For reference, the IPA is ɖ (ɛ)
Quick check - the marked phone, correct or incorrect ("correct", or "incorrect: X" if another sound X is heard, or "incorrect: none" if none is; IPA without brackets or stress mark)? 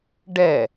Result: correct